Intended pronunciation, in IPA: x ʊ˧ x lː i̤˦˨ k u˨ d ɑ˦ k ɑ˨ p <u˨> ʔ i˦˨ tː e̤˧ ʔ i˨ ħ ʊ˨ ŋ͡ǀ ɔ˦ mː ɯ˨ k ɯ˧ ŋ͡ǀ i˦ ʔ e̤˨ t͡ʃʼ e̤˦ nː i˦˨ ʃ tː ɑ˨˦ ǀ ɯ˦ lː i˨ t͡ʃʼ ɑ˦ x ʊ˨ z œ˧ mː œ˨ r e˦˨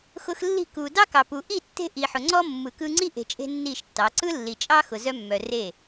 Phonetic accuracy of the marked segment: correct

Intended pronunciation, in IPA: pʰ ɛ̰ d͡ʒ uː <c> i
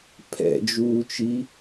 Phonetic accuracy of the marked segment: incorrect: t͡ʃ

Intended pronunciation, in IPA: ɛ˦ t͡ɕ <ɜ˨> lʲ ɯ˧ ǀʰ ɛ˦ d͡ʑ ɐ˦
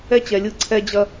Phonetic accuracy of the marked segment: incorrect: ɛ˨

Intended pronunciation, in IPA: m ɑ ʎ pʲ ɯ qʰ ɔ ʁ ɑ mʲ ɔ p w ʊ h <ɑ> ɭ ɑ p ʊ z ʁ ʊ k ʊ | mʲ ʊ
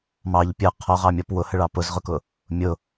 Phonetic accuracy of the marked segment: incorrect: ə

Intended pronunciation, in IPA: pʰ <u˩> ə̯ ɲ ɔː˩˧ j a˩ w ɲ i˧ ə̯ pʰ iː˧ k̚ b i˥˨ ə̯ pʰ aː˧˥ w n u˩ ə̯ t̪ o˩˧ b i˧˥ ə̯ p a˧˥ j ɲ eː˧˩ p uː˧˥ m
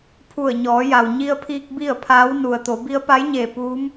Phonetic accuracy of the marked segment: incorrect: u˧˩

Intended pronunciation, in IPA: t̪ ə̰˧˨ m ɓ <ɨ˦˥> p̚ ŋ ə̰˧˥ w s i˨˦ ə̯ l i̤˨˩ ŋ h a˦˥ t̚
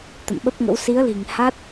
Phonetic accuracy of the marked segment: incorrect: ə˦˥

